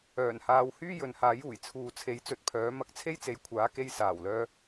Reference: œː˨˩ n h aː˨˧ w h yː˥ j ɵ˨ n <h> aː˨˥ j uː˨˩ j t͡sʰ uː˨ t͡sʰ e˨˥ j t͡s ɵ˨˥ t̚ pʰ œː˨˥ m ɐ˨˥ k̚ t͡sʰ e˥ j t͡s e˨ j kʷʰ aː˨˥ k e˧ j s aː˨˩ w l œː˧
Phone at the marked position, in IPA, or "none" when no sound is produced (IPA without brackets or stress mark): h